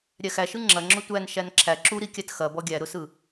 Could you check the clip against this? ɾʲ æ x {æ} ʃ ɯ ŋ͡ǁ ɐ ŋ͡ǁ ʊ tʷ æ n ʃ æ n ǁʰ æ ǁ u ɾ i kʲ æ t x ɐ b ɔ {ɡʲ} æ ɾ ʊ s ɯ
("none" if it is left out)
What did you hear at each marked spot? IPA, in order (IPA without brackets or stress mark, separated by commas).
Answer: æ, ɡʲ